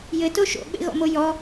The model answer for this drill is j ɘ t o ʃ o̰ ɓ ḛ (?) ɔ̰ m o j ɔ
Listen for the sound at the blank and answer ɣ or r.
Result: ɣ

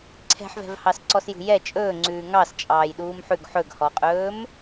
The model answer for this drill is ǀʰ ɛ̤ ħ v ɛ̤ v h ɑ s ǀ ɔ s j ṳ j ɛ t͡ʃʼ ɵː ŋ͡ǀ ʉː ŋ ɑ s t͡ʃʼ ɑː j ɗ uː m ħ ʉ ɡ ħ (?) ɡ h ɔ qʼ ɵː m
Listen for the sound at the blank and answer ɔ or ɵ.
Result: ɵ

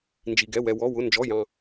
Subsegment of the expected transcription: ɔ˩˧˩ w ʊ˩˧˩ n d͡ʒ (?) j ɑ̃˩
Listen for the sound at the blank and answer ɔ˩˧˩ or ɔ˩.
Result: ɔ˩˧˩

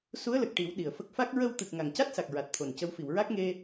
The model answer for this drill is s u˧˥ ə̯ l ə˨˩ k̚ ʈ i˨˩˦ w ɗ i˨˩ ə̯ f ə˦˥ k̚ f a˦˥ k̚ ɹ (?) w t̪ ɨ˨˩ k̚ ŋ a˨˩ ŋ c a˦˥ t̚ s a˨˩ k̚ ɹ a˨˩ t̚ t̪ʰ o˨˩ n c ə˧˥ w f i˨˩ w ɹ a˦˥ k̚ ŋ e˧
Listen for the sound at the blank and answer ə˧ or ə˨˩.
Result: ə˧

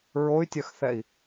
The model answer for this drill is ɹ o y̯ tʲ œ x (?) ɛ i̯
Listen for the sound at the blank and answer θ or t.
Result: θ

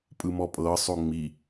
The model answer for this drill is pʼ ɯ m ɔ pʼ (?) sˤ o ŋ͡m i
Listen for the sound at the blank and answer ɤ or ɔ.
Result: ɤ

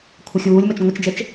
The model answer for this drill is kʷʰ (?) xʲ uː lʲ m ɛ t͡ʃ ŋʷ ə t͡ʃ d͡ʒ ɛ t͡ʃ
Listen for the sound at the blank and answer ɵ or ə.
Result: ə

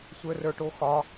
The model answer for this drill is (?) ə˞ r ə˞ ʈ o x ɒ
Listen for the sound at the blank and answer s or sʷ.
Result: sʷ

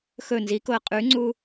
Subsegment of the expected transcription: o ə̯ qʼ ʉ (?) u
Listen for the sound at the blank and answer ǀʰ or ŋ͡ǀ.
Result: ŋ͡ǀ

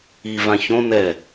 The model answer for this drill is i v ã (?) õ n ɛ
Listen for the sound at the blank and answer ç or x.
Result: ç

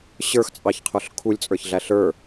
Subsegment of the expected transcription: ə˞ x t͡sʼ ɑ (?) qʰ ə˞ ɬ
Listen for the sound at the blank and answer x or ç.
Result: ç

